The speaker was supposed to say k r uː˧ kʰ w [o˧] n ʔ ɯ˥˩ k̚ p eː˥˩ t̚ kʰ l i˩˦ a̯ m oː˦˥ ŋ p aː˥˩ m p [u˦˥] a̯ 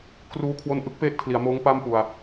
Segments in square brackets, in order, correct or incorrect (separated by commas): correct, incorrect